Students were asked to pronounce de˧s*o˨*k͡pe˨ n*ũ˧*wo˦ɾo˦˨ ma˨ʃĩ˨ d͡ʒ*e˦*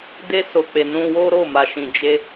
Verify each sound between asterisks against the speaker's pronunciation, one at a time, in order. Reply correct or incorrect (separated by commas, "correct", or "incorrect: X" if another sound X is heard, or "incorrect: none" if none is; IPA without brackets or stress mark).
correct, correct, incorrect: e˧